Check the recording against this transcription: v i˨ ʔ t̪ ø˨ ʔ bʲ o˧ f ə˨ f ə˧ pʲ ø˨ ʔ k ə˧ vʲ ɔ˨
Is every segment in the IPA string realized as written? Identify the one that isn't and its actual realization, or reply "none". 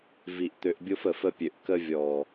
none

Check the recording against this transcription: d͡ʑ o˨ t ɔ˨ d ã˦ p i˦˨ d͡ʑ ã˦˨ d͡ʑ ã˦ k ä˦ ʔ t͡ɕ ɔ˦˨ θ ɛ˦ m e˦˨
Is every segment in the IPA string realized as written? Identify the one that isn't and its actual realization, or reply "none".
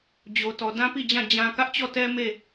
θ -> t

